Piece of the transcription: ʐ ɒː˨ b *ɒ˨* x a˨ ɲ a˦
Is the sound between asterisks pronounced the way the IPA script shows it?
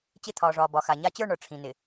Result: yes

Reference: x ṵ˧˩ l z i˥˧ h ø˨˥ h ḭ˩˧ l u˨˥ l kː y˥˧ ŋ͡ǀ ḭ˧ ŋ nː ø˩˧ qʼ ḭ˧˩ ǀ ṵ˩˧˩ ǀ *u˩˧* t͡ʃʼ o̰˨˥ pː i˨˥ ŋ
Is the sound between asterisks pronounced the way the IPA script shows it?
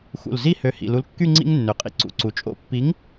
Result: yes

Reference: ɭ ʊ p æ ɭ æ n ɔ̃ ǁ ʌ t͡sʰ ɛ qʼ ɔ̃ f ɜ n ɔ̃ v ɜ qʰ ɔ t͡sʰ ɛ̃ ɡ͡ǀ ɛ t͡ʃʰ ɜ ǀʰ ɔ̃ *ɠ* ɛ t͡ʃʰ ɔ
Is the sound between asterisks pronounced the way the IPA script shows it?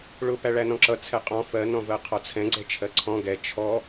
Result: no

